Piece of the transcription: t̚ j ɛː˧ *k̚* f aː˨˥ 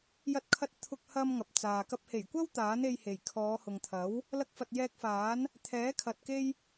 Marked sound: correct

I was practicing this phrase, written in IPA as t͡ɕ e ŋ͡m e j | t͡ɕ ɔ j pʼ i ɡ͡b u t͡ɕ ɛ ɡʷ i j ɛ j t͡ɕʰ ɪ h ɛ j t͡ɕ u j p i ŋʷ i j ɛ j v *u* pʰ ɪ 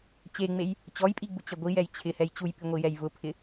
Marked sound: incorrect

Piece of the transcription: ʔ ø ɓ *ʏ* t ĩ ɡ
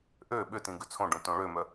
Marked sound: correct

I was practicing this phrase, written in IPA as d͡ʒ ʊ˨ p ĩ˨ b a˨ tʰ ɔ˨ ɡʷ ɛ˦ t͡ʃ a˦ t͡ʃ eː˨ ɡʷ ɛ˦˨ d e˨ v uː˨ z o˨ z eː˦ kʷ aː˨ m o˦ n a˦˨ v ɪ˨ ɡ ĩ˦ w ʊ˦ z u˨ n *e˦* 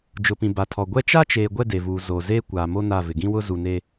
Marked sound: correct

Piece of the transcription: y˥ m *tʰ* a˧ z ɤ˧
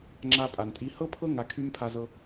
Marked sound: incorrect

